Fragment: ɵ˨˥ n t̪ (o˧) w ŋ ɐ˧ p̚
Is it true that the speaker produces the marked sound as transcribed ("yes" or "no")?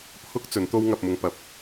no